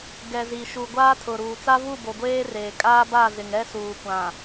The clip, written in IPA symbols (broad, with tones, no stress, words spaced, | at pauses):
ɡɛ˨zi˨ʃu˨ ɡʷaː˦tʰʊ˨ɾuː˨ t͡sa˦vu˦˨bo˨ ɡʷeː˦reː˨ kʼaː˦ba˦˨zɪ˨ŋɛ˦ suː˨kʷã˨